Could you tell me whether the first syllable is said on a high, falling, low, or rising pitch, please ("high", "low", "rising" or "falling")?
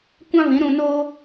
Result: high